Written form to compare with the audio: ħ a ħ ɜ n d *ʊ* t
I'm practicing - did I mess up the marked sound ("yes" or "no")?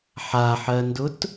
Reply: no